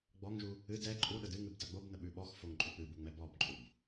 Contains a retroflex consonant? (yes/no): no